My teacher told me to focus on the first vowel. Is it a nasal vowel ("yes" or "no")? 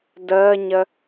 no